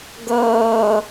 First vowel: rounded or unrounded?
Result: unrounded